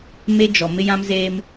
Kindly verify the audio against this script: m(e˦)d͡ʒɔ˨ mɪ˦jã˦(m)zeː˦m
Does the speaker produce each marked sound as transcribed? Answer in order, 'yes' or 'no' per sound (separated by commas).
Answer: yes, yes